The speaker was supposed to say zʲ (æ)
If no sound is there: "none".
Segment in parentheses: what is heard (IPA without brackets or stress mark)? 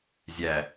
æ